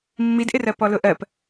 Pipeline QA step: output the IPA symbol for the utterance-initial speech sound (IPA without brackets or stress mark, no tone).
mː